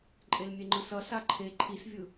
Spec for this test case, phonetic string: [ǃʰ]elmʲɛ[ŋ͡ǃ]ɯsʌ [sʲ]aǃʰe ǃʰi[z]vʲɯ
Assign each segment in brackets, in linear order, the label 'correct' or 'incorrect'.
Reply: incorrect, correct, incorrect, incorrect

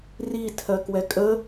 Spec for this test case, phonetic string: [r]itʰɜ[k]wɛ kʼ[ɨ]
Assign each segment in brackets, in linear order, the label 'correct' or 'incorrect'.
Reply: correct, correct, incorrect

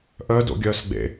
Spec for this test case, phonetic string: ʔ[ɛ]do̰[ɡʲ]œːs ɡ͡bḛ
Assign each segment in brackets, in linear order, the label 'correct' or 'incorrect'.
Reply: incorrect, correct

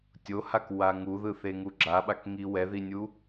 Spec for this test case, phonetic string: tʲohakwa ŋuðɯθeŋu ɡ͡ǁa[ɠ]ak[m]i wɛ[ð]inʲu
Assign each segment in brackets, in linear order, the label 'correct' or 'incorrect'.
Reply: incorrect, incorrect, correct

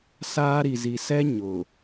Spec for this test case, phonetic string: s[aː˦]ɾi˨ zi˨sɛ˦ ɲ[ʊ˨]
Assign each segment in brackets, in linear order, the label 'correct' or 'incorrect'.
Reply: correct, correct

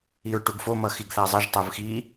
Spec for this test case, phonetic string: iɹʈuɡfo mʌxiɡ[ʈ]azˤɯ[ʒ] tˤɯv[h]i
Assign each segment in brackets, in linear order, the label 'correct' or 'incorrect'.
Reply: incorrect, correct, incorrect

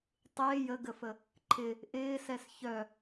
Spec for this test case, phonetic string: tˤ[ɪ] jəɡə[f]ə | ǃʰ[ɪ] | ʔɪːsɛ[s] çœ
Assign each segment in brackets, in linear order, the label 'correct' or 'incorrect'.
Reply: incorrect, correct, correct, correct

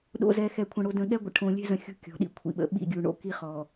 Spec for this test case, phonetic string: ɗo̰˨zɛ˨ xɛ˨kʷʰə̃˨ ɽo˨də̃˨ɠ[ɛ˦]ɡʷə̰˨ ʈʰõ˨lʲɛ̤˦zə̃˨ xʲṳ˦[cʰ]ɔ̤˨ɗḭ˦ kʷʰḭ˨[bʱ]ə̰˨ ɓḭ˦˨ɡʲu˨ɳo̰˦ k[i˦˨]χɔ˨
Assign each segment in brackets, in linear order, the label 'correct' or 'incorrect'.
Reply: correct, incorrect, incorrect, incorrect

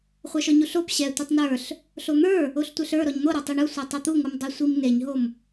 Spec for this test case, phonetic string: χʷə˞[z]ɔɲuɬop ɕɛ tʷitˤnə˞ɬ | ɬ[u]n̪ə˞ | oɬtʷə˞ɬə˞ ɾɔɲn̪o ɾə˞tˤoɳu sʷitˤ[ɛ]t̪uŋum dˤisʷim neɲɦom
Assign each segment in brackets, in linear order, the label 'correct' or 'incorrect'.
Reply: incorrect, incorrect, correct

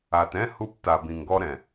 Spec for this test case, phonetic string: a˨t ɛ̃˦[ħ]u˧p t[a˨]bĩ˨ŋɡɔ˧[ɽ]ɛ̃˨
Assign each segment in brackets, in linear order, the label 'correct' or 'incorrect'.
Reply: incorrect, correct, incorrect

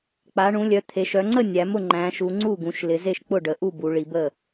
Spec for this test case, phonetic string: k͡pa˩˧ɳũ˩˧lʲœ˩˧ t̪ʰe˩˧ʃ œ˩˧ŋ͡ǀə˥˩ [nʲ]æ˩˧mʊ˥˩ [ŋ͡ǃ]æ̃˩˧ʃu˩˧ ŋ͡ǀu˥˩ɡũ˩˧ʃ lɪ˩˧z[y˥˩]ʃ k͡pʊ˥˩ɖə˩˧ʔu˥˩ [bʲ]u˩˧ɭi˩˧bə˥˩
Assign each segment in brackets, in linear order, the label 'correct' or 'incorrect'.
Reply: correct, correct, incorrect, incorrect

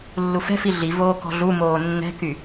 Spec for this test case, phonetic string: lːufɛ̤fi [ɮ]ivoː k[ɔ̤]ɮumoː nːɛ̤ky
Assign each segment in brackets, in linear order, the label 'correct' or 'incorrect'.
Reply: correct, correct

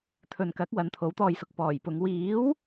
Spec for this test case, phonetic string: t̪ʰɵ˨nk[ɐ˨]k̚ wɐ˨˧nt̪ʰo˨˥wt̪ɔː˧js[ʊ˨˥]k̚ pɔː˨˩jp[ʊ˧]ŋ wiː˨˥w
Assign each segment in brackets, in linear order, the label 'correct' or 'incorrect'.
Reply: incorrect, correct, incorrect

